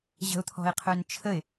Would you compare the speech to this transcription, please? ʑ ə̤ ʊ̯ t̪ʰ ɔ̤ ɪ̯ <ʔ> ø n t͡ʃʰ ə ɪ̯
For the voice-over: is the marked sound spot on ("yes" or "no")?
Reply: no